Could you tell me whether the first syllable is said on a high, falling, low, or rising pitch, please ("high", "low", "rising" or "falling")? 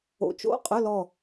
rising